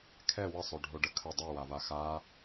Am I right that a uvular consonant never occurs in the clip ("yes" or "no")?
yes